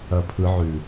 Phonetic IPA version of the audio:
ɐ pʰ ɯ ʕ ʉ

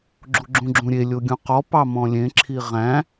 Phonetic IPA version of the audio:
ɡ͡ǁ u ɡ͡ǁ ũ ɡ͡ǁ ũ ɾʲ e lʲ o ɡʲ ũ q ɔ p ɑ m ɔ̃ lʲ ẽ ǁʰ i ʁ æ̃

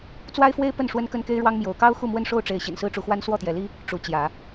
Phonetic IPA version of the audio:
t͡s w a˦ ɪ̯ f w e˦ ɪ̯ p ə˥˨ n ʂ w ə˦ n k ə˦ n k e˦ ɪ̯ ɻ w ɑ˦ ŋ m j o˨˦ ʊ̯ k ɑ˦ ʊ̯ x u˥˨ m w ə˥˨ n ʂ o˥˨ ʊ̯ ʈ͡ʂ e˨˦ ɪ̯ ɕ ḭ˨˩ n s ɹ̩˦ ʈ͡ʂ u˨˦ x w a˦ n s w ɔ˥˨ t̪ j ɛ˨˦ l i˦ | ʈ͡ʂ u˨˦ t͡ɕ j ä˨˦

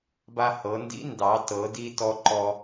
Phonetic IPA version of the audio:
b a˧ h ɤ˩˧ n d ḭ˧˥ n d ɑ˩˧ t ɤ˩˧ d i˧ t ɔ˥ ǃ ɔ˥

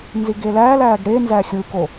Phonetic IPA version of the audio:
n z i ɡ e l æː l æː ɡ ɽ e n z æ xʲ ɯ k o

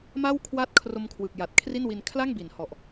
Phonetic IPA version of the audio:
m a˥˩ w kʰ w a˥˩ t̚ kʰ r o˦˥ m kʰ w ɯ˨˩ k̚ j a˨˩ t̚ kʰ r i˥˩ n w i˧ n kʰ l a˥˩ ŋ b i˩˦ n h ɔ˨˩ ʔ

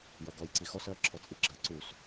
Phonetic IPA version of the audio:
j ʌ ɡ ɔ j ǀ i x ɔ s ɜ ǁʰ ɔ t͡sʼ i ɡ͡ǁ ɜ ǀ u s

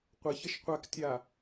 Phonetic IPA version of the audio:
qʷ ʌ ç ʌ ʃ qʷ a k tʲ a

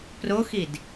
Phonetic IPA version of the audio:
p r o x i d

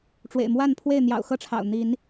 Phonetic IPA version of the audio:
ʈ͡ʂ w ḛ˨˩ ɪ̯ m w a˥˨ n pʰ w e˥˨ ɪ̯ n̪ j ɑ̰˨˩ ʊ̯ x ɤ˥˨ ʈ͡ʂʰ ɑ̰˨˩ ʊ̯ n̪ i˨˦ n

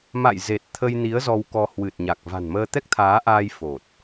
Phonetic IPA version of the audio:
m a̰˧˨ j z e˨˩ t̚ t̪ʰ ə˧ j n i˨˦ ə̯ z ɔ˧ w k ɔ˧ h w ɨ˨˩ t̚ ɲ a˨˩ k̚ v a̤˨˩ n m əː˧ t̪ ɛ˦˥ k̚ t̪ʰ aː˨˦ ʔ aː˧ j f o˨˩ t̚

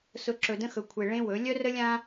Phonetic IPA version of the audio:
s ʊ˨ ǁ ɵ˨ d ə̃˦ x ɵ˨ kʷʰ e˨ ɭ ẽ˦ w ɵ˨˦ lʲ œ˦ r ə˦ lʲ ã˦

